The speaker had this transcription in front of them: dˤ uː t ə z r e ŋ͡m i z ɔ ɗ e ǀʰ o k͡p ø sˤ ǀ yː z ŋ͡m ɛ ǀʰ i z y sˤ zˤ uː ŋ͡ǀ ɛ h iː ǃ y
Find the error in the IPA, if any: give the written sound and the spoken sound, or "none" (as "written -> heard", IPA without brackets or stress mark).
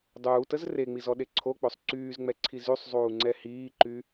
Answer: none